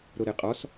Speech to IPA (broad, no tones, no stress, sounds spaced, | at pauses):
ɾ o ɾ e qʼ ɔ s